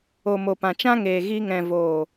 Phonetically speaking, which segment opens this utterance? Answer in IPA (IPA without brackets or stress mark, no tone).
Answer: o